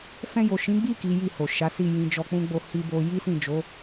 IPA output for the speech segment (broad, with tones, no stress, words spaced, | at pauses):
fɛ̃˧jo˨ʃĩ˨˦ɡ͡bi˦˨ ki˨˦ji˦˨ho˨ ʃa˨˦si˦˨ jĩ˧d͡ʒɔ˧k͡pũ˦ɡ͡bo˦˨ hi˧bo˧ ji˦sĩ˦˨d͡ʒo˨˦